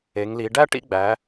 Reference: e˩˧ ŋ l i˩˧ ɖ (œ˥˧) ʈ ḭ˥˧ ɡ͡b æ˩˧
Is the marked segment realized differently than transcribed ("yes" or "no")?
yes